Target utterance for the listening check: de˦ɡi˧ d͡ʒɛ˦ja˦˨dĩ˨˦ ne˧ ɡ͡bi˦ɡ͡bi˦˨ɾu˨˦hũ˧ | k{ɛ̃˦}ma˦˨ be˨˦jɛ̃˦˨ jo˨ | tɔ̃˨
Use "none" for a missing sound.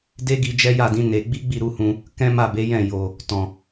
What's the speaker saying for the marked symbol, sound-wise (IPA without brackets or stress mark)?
ɛ̃˦